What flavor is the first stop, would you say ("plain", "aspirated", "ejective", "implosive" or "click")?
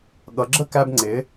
implosive